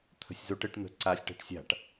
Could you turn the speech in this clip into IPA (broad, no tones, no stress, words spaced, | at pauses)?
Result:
t̪ʰə̤sʲzoʈ ɘʈ n̪ə̤ǀasʲ ʈɛ̤ʈsʲa̤ʈ